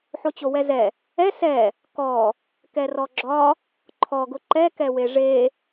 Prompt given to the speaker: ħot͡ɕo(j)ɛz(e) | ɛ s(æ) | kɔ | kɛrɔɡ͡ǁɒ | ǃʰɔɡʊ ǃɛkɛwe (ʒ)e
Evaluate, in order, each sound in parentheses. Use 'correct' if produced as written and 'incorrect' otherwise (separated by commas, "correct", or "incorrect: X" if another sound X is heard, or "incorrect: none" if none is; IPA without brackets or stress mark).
incorrect: w, incorrect: ɛ, incorrect: ɛ, incorrect: ʐ